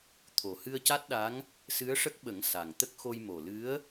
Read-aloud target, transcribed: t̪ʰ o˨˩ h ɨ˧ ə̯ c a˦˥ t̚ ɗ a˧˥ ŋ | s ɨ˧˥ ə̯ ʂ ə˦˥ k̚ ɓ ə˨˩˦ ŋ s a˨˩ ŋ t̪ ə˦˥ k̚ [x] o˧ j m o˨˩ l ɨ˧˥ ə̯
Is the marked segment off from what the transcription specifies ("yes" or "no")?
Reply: no